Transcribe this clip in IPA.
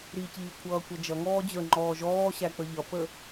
ɾ i c iː kʷʰ ʌː kʷ ʌ d͡ʒ ʌ ŋ ɔː d͡ʑ ə˞ ŋ͡ǃ ɔː ʒ ɔː ɕ æ k͡p ə ʎ ʌ p ə

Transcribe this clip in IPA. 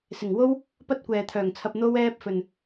s ɪ˨˩ ŋ w o˥ w | p ɐ˥ t̚ kʷ ɛː˨ t̪ʰ œː˨˩ ŋ t͡sʰ ɐ˧ p̚ n̪ o˧ w ɛː˧ p̚ f ɵ˨ n

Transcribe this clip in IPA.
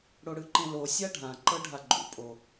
ɽ o ɽ ɯ ǃ ẽ l o sʲ a ɖʱ ã ǃ ɤ ɖʱ a ɡ͡ǃ ṵ pʼ o

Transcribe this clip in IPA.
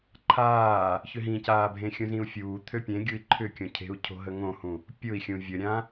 ǃʰ aː | ç ʏ ɦ ĩ c aː bʱ ẽ xʲ ũ z ĩ u̯ fʲ uː t̪ʰ ø pʲ ẽ ɡʲ u i̯ ǃʰ ʏ kʲ õ cʰ e̤ u̯ cʰ o̤ ɦ ə ŋ õ h ũ | pʲ ʊ i̯ xʲ ũ vʲ ə ɾʲ ã

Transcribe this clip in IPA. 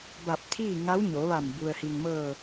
b a˧˩ p̚ t̪ʰ iː˥˨ ŋ a˧˥ w ɲ o˩˧ ʋ a˧˩ m b u˩ ə̯ h i˩ ŋ m ɤː˧˩

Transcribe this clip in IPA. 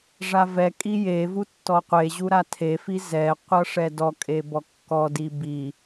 ʐ a v ɛ kʼ i j e v u tː ɔ qʷ e ʑ u ɾ a tʰ e f i z ɛ qʷ ʌ ʂ ɛ d ɔ kʼ e b ɔ kː ɔ d i b i

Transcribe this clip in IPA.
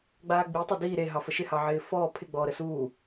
ɡ͡b aː ɡ͡b i tˤ a d iː ɾ e ɦ ɑ f ə ʃ ɪ h ɑ ʕ ɪː f ɔː pʰ ɪ ɡ͡b ɔː ɾ ə s uː

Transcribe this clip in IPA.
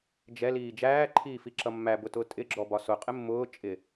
d͡ʒ ɛ l iː d͡ʒ æː ǃʰ iː f i ǁ ʌ mː æ b ʊ t ʊː tʼ ɪ ɡ͡ǁ ɔ b ɒ s ʊ qʼ ɪ mː ʊː t͡ʃʼ ɪ

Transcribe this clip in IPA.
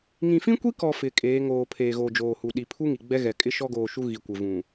ŋ ĩ˨ f ĩ˦ kʷ i˦ k ɔ˨ f ɪ˨ kʼ eː˨˦ ŋ oː˨ pʰ eː˨ ɣ oː˨ d͡ʒ oː˨ h u˨ ɗ i˨ pʰ u˦ ŋ i˨ ɡ͡b ɛ˦ ɣ ɛ˨ kʼ ɪ˦ ʃ ɔ˦ ɡ oː˨ ʃ u˦ ɣ i˨ kʷ ɪ˨ v ũ˨

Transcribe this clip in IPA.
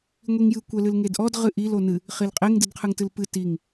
ŋʷ i ŋ j ɨ kʷ ɛ l ɨ l ŋ e d ʔ ɔ d ʁ ɨ ʔ i l o n ɨ | χ i l qʼ e ŋ d ɨ d qʰ ɨ ŋ t ɨ l p ɨ t i ŋ

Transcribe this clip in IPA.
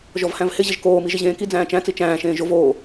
ʒ ɔ v h æ̃ v h ɪ ʑ ɪ ʒ k oː m i ʒ ɪ ʑ ẽː k i d͡z æ̃ː t͡ʃ æ̃ t͡s i t͡ʃ æ̃ː ʃ ẽː ʒ o v oː

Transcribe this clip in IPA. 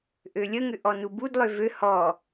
ʔ ø lʲ ə ŋ ʏ ʔ ɔ n u b u d lˠ ø v ø h ɔ

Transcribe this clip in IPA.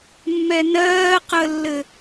mː ɛ n ɜː q ə lː ɘ

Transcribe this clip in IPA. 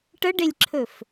ʈ ə ɖ e lʲ ǁʰ ɵ f

